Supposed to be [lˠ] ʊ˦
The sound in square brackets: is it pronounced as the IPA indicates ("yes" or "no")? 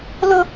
no